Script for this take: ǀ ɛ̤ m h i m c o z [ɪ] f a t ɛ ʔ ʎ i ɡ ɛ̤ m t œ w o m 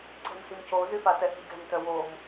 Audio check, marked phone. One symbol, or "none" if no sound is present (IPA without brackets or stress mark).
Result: y